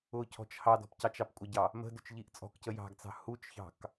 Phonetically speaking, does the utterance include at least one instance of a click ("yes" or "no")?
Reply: no